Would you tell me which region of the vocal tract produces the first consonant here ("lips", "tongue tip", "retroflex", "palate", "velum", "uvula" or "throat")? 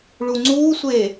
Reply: retroflex